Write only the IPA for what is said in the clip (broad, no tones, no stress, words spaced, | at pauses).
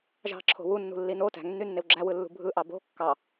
ʒɑ̤ǁʰo̤ wunːṳlːi no tæ̤ŋnːynːew ɡ͡ǁæwɯlːṳ bʱɯʔɑ bo̤ kːɑ